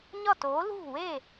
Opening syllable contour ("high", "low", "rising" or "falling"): falling